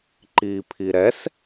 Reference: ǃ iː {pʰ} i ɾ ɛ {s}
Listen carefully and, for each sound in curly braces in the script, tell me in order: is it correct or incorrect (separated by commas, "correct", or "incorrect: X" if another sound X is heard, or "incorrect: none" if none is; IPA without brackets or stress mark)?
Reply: correct, correct